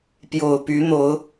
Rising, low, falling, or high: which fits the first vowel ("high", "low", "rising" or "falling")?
low